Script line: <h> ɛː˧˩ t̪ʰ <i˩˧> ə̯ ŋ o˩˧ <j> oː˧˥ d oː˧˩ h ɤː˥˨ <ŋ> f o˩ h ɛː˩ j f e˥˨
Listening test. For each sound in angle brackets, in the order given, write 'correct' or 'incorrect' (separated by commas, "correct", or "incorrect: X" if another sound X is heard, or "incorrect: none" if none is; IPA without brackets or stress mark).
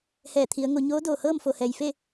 correct, correct, incorrect: ɲ, incorrect: m